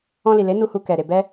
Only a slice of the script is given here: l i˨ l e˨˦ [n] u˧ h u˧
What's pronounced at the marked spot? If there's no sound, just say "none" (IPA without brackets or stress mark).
n